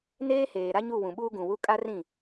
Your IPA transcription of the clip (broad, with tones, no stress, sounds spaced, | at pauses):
n eː˦ h eː˨ ɾ a˦ ɲ u˦˨ w ũ˨ ɓ uː˦ ɡ ũ˨ w u˦ kʼ a˦ r ĩ˦˨